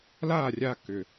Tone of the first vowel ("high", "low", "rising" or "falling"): falling